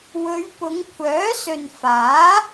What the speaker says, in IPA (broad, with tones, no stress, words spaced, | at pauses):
wɵ˨˧ɥpʊ˨˧ŋkʷʰœː˨˥sɵ˨n faː˨˥